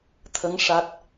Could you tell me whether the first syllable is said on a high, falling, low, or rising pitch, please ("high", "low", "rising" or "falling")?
rising